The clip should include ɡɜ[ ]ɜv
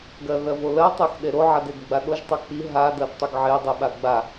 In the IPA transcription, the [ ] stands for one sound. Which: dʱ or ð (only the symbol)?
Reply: ð